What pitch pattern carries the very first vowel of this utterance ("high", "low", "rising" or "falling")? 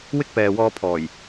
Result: high